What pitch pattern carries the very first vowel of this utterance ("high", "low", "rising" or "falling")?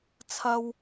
low